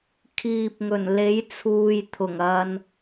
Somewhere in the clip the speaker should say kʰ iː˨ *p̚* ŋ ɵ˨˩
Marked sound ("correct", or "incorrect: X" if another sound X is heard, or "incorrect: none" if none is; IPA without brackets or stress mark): correct